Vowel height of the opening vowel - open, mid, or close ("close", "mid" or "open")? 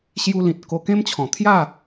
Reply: close